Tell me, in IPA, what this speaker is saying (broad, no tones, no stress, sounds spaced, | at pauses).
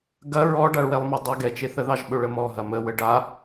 ɡ ɐ ɹ ɔ ɖ a ɭ w ɛ lˠ m ɐ dˤ ɐ ɡ ɛ t͡ʃ e θ ə ð ɑ ʒ ɓ ɵ ɭ ə m ɔ ɦ ɐ m ə w ə ɖ a